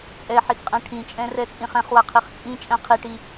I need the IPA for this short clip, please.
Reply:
t͡sʼ ɛ ħ i t qʼ ɛ̃ ʈʰ ĩ t͡ʃʼ ɛ̃ r ɛ t͡sʼ ĩ χ ɛ̃ χ w a qʰ i χ t͡sʼ ĩ t͡ʃʼ ɛ̃ qʰ i ʈ i

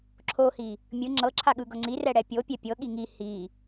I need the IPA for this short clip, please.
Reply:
ǁʰ o h i | mʲ ɯ ŋ͡ǁ ɤ ǁʰ a ɠ ɯ ɡ ɤ ŋ͡ǀ i r ɛ ɽ ɛ pʲ o pʲ ɛ pʲ ɤ ɠ i ŋ i h i

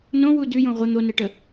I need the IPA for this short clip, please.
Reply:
n õ w u d ʉ j õ ʁʷ ə n̪ o n ɛ ʈ ə

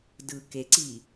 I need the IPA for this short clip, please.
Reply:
d ɯ k e ǀ i

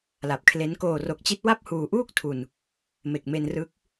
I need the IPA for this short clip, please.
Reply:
l a˨˩ p̚ kʰ l e˦˥ n k oː˨˩ r o˨˩ k̚ t͡ɕ i˦˥ t̚ w a˥˩ p̚ h uː˨˩ ʔ uː˥˩ k̚ tʰ u˨˩ n | m e˨˩ k̚ m e˧ n r ɯ˦˥ k̚

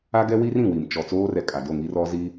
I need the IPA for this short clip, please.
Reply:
a˦ ɡ ɛ˦ w i˦ r ĩ˨ w i˨ m t͡ʃ ɔ˨ t͡s oː˦ r ɛ˨ kʼ a˨ d o˦˨ ŋ i˦ r ɔ˦ z i˦

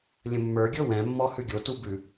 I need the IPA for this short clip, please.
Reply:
lʲ ə̃ mː ə˞ ɡʲ ɤ w ɛ̃ mː ɔ h ʉ ɡʲ o t u b ʉ

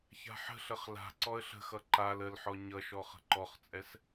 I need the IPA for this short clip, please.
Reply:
ç a̤ ħ ə̤ ɬ ə χ l a̤ ǀ ɔ ə̯ ɬ ə̤ x ʌ ǃ a l ə l ħ ɔ ɲ ʌ ʃ ɔ χ ə̤ ǃ ɔ χ t͡sʼ ɛ s

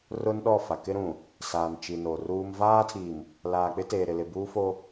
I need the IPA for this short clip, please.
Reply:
r ʊ˦ n ɗ ɔ˦˨ f a˨ k ɪ˦ ɾ ũ˨ | s aː˨ n t͡ʃ i˨ n o˨ r uː˦ m v aː˦ tʰ i˨ m | l aː˨ k͡p ɪ˦ t eː˨ ɾ ɪ˨ l ɪ˨ b uː˦ f o˦

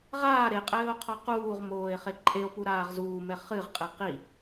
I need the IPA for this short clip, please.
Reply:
ʁ aː ɾ e qʼ ɘː o̯ qʰ ɔ q uː ʁ m oː e̯ χ e ǃʼ e o̯ p u ɾ aː ʁ z uː m ɛ χ ɨ ʁ qʼ e q i

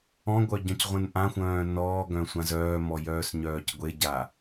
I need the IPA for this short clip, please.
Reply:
ɔ̃ ɡʷ œ ɟ œ̃ c ʁʷ ẽ n ʔ ã xʷ œ̃ː n ɔː ɡ œ̃ sʷ ã z œː m ɔ j œː s ɲ œː c ɡʷ e ɟ a

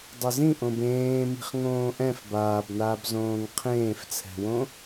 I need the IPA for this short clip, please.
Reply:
dˤ ɘ z ĩ ʔ õ b ẽː m i̤ χ ŋ õː ʔ ɛ̃ f b aː b n aː b z õː ŋ qʰ ẽː f t͡sʰ ɛ̤ w õ

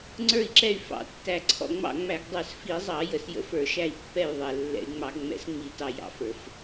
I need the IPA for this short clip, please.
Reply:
ŋ͡ǀ ə˞˧˩ i̯ ǁ ɛ˧˩ y̯ f ɑ̰˧˩˧ tː æ˧˩ ǀʰ ɔ̰˧˩ ŋ͡m ɑ̰˧˩ ŋ͡m æ˧˩˧ ɡ dˤ ə˞˧˩˧ s f i˧˩˧ zˤ ɑ˧˩˧ j ə˧˩˧ s j ə̰˧˩˧ f ə˞˧˩˧ ʃ æ˧˩ i̯ pː ɛ˧˩ j ðˤ ɛ˧˩ lː ɛ̰˧˩˧ y̯ ŋ͡m ɑ˧˩˧ ɡ ŋ͡m ɛ̰˧˩˧ s ŋ͡m i˧˩˧ t ɑ˧˩ j ɑ̰˧˩ f ə˞˧˩˧ f

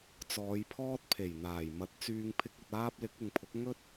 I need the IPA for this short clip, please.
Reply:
t͡s ɔː˨˧ j pʰ ɔː˥ t̚ pʰ e˨˩ j n̪ aː˨˩ j m ɐ˨˥ t̚ t͡s yː˧ ŋ pʰ ɪ˧ k̚ ɵ˨ t̚ aː˧ p̚ l ɪ˨˥ k̚ ɪ˨ ŋ pʰ ʊ˨˥ k̚ ŋ ɵ˥ t̚

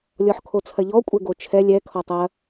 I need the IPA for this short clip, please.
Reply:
lʲ ɔ ħ kʰ o t͡sʰ ɐ ʎ ɔ kʷʼ ɛ ɡ o t͡ʃʰ ɛ lʲ ɛ kʰ ɔ tˤ ɐ

